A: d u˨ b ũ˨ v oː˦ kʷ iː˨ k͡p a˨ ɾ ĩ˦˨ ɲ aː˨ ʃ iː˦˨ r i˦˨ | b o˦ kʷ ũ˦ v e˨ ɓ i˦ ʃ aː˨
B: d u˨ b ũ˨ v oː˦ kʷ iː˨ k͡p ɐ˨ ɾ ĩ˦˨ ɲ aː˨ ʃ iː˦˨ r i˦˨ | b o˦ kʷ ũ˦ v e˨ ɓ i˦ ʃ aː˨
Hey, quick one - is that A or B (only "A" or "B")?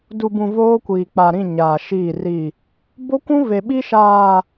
A